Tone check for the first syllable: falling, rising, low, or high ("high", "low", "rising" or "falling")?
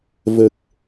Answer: low